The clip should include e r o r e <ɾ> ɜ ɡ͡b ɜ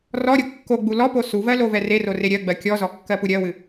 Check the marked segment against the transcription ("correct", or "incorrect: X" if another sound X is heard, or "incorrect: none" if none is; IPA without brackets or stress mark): incorrect: ɾʲ